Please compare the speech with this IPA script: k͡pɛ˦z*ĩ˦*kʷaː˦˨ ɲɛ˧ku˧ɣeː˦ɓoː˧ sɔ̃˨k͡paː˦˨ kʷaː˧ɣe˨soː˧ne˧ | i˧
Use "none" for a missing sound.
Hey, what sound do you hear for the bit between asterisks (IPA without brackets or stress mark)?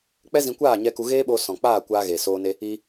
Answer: ĩ˧